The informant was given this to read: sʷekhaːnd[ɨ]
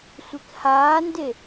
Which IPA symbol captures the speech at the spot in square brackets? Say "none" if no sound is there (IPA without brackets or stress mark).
e